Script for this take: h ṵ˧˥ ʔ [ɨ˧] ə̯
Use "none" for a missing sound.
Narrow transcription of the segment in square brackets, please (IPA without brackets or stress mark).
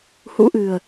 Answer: ɨ̤˨˩